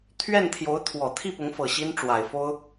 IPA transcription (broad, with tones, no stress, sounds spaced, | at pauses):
t̪ʰ ɥ ɛ˥˩ n t̪ʰ j o˧˥ ʊ̯ t̪ʰ w ɔ˨˩ t̪ʰ i˥˩ p ʊ˧˥ ŋ f ɤ˨˩ ɕ i˥ n ʈ͡ʂ w a˨˩ ɪ̯ f o˥ ʊ̯